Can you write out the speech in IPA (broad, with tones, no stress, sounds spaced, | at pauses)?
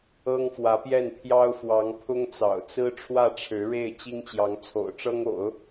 ɤ˥ ŋ f w ä˧˥ p j ɛ˥˩ n pʰ j ɑ˥ ʊ̯ f w ɑ˧˥ ŋ pʰ ʊ˥ ŋ t͡s ɑ̰˨˩ ʊ̯ t͡s ɹ̩˥ ʈ͡ʂʰ w ä˥˩ ʈ͡ʂʰ ɻ̩˧˥ ɻ e˥˩ ɪ̯ t͡ɕ i˥ ŋ t͡ɕ j ɑ˧˥ ŋ t͡sʰ o̰˨˩ ʊ̯ ʈ͡ʂ ɤ˥ ŋ o̰˨˩˦ ʊ̯